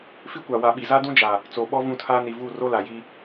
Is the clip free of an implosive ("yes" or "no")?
no